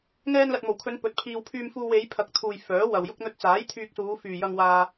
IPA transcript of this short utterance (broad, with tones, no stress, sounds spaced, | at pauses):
ŋ ɛː˧ n l ɐ˨ t̚ m o˨˩ w kʰ ɵ˨˧ n p ɵ˨˥ t̚ pʰ iː˧ w pʰ yː˧ m f uː˧ w e˨˧ j pʰ ɐ˨ k̚ t̪ʰ uː˨ j f œː˨˥ w ɐ˨ w j ʊ˥ k̚ n̪ ɵ˧ t̚ t͡s aː˨˥ j t̪ʰ yː˧ k̚ s uː˨˧ f yː˨ j ɐ˧ ŋ w aː˧